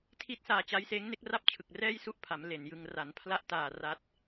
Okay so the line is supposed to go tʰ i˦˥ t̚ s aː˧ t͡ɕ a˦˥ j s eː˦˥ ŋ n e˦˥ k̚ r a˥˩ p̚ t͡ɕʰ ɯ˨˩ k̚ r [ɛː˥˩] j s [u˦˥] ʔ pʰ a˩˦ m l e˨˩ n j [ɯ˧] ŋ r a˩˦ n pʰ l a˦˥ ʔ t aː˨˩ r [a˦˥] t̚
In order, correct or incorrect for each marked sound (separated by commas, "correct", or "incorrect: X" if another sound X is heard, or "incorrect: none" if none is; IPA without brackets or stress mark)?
correct, incorrect: u˥˩, correct, correct